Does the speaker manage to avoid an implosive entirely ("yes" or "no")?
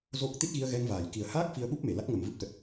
no